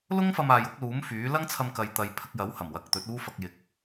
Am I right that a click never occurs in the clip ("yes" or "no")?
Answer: yes